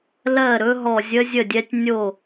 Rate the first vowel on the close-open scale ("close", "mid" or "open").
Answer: mid